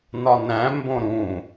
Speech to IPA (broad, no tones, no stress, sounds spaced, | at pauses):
n ɒ n æ̃ m b õ ɾ ũ